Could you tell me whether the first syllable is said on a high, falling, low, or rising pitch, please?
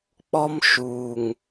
high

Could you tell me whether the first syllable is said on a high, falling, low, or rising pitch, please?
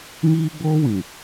high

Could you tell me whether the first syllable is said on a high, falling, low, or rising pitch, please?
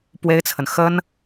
high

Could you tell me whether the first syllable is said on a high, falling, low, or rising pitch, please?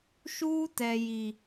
high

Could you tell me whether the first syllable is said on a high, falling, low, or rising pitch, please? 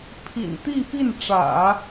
low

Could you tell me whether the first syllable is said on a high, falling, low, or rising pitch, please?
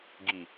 low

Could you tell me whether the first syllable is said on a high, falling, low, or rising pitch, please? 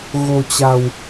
low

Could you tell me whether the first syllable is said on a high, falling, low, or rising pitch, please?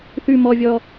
high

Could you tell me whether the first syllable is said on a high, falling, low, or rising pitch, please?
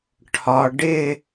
low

